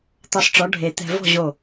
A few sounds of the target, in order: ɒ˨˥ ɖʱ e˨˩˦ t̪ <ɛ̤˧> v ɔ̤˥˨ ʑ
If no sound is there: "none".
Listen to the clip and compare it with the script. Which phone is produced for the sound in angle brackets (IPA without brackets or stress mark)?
ɛ̤˧